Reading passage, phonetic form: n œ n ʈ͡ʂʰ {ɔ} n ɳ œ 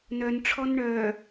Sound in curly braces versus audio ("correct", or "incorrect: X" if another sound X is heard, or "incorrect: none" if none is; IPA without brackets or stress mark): correct